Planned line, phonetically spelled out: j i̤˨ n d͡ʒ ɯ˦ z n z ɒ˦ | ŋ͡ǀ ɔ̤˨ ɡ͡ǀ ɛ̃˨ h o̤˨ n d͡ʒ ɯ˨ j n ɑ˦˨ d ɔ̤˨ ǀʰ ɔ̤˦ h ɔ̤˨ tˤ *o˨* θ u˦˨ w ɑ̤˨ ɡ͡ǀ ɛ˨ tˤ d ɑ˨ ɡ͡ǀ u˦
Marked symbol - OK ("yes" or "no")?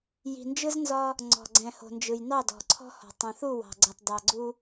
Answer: no